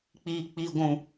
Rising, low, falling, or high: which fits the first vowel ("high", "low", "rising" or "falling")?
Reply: low